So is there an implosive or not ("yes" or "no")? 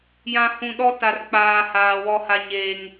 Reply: yes